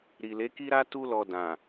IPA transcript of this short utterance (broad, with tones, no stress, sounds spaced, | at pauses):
ɾ i˨ l e˨˦ k i˦ ɾ a˦ t u˧ l ɔ˨ d ã˨